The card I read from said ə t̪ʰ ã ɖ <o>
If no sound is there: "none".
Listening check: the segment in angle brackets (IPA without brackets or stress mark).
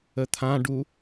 u